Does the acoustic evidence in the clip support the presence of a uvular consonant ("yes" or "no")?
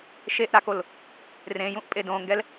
no